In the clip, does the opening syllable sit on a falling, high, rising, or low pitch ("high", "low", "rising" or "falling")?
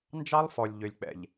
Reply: high